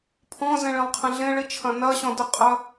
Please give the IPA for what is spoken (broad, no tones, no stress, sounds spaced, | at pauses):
pʰ ɔ̃ z ẽ ɭ ẽ lˠ qʰ ẽ ɮ ẽ ɭ i t͡ʃʰ ɐ̃ n ɐ ɕ ɔ̃ d ə qʼ ɐ